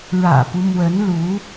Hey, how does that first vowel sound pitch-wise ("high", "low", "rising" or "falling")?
low